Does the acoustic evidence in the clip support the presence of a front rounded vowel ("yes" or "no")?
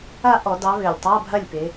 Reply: yes